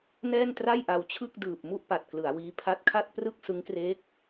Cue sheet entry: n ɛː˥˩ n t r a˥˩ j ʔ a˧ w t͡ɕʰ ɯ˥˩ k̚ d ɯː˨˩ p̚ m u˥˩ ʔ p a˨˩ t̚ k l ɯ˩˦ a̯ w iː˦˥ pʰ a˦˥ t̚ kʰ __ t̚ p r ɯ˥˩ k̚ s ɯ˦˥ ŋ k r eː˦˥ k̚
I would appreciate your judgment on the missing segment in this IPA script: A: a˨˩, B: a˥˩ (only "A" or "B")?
B